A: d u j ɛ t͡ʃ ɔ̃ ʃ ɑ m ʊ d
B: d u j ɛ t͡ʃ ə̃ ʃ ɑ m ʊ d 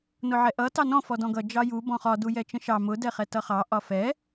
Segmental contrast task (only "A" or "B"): B